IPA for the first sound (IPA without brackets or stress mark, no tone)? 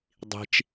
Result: dˤ